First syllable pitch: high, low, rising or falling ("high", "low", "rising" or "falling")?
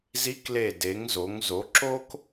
rising